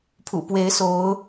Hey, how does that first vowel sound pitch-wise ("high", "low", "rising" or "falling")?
low